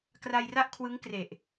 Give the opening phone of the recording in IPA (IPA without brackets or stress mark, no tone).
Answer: k